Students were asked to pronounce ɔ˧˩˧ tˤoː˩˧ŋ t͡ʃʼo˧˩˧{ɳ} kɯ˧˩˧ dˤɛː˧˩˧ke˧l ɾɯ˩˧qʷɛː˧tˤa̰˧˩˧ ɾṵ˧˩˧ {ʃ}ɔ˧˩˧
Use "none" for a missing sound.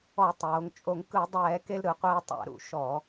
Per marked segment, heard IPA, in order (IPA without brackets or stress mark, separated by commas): ŋ, ʃ